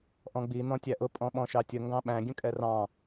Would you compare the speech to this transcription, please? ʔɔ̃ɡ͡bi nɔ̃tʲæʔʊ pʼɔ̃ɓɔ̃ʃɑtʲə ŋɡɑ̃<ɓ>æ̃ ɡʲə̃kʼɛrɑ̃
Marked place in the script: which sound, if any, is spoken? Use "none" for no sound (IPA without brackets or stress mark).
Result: ɓ